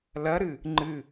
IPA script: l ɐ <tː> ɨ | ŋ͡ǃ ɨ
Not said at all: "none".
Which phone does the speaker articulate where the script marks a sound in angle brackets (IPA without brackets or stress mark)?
ɾ